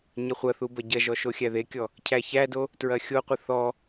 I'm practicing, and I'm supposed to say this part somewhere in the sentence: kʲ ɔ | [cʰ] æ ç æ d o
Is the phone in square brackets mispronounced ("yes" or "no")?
no